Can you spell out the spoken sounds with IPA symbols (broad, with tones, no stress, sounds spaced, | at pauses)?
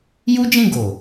j u˦ d͡ʒ ĩ˦˨ ɡ o˨